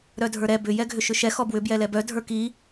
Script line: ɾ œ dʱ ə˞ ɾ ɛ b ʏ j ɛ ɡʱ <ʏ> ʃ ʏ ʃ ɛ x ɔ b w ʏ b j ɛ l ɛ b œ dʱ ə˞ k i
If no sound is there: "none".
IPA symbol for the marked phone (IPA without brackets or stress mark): ʏ